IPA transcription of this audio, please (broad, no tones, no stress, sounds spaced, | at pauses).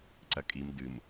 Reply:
ǀ ɐ kʼ i m d ɨ m